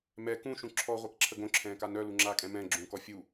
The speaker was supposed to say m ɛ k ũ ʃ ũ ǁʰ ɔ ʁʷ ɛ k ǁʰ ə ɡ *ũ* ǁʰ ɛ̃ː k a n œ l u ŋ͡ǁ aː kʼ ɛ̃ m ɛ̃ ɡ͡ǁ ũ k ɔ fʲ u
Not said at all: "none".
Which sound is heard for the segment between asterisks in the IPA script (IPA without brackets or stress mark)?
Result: õ